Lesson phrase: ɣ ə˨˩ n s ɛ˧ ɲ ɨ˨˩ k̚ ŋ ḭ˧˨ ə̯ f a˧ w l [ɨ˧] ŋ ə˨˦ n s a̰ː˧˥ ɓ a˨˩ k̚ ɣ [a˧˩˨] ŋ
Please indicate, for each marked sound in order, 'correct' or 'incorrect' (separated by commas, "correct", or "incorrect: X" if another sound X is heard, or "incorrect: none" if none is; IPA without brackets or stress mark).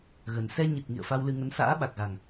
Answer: correct, incorrect: a˨˩